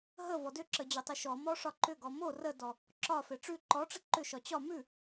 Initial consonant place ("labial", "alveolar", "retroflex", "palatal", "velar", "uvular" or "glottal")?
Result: glottal